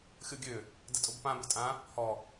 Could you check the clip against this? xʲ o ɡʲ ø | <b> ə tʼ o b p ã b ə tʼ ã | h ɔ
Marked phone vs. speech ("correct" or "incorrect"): incorrect